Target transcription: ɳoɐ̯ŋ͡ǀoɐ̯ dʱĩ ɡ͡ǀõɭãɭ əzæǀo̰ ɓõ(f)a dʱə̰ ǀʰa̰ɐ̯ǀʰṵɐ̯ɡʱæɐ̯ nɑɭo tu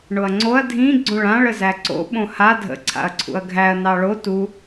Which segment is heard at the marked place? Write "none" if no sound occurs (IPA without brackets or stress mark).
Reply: h